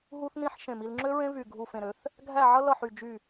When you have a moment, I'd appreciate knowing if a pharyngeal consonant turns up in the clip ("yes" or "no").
yes